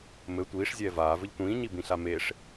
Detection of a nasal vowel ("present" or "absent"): present